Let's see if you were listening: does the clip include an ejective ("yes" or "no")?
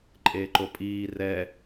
yes